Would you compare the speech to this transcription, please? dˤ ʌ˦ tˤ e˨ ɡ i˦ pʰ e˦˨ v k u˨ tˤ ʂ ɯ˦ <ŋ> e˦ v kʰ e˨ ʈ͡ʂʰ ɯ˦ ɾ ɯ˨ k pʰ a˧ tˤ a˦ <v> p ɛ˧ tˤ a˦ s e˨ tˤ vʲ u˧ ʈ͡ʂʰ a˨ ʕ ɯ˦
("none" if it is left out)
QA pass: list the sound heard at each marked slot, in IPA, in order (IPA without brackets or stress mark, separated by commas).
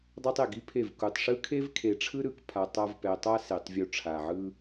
kʰ, v